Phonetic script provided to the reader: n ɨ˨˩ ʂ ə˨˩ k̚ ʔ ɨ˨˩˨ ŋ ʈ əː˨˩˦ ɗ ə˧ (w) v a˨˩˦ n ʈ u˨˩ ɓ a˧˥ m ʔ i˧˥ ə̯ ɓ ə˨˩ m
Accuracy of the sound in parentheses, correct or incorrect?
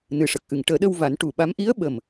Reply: correct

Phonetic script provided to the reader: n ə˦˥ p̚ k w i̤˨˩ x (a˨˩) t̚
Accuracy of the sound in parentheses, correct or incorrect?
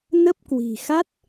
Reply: incorrect: a˦˥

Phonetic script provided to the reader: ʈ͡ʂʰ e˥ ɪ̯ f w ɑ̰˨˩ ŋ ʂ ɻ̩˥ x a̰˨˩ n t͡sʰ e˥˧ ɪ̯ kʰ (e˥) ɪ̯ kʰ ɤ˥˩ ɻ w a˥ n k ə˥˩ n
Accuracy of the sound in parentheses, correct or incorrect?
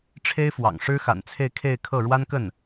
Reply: incorrect: e˥˧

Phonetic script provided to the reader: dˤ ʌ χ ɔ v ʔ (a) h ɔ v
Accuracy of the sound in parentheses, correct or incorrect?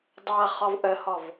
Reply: incorrect: ə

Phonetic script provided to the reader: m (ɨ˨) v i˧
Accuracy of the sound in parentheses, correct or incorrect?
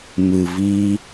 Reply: correct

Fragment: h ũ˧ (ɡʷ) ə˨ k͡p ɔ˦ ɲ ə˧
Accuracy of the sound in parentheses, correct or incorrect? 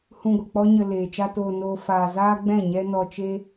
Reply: correct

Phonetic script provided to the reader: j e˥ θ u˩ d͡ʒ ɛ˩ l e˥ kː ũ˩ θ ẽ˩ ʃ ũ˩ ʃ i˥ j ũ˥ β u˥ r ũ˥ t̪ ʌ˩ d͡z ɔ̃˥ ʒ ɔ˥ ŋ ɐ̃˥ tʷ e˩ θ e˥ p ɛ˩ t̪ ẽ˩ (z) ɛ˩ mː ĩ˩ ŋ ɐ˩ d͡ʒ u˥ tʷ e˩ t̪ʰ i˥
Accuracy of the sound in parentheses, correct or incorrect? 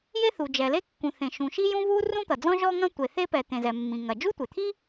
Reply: correct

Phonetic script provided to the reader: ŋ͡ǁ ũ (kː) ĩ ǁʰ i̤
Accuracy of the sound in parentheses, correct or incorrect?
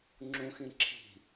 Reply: incorrect: x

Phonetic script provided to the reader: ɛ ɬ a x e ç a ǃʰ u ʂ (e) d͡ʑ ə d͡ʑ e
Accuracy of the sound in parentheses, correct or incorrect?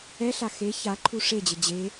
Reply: correct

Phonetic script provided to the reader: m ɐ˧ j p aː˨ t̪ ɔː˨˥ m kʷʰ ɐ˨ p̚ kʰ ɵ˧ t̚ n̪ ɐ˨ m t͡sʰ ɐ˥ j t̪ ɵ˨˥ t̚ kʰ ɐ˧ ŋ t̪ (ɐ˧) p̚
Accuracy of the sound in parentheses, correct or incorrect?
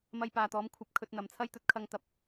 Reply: correct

